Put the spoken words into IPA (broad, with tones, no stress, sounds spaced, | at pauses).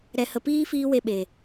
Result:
ɾ ɛ˨ h ə˨ p iː˦ f iː˦ w e˧ ɓ e˨